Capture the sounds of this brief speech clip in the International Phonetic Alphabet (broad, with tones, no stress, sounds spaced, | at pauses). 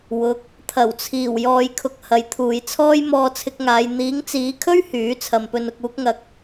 w ʊ˨˥ k̚ | t̪ʰ ɐ˨˩ w t͡sʰ iː˨˩ w j ɔː˨ j kʰ ʊ˨ k̚ h ɐ˨˧ j t̪ʰ uː˨˧ j t͡sʰ ɔː˥ j m ɔː˧ t͡sʰ ɪ˧ k̚ ŋ aː˨˧ j n̪ iː˨˥ ŋ t͡s iː˨˥ kʰ ɵ˥ ɥ h yː˨˥ t͡sʰ ɐ˨ m p ɵ˧ n ʊ˧ k̚ uː˥ k̚ ŋ ɐ˧ k̚